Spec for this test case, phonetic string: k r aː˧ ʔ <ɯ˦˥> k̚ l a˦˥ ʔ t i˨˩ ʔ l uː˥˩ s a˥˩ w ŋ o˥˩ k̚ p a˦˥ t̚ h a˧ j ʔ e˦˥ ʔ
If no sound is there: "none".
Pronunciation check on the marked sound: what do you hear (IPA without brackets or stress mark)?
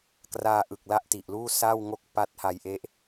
ɯ˨˩